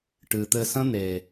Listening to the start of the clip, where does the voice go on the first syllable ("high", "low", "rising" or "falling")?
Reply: low